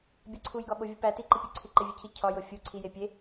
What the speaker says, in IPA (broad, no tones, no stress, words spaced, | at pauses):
bʲɒǀʰujɡɒɓo vʲupæ tiǃipʲoǀʰi ǃevʲecʰi cʰɒ jofʲu ǀʰije pʲe